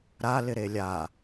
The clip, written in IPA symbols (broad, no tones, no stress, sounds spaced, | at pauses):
ɾ a l ɪ ɾ e lʲ a